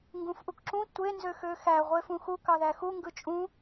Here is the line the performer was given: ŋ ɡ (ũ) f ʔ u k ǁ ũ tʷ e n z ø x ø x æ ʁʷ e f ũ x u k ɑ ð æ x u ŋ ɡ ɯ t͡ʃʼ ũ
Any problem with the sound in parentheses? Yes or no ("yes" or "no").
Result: no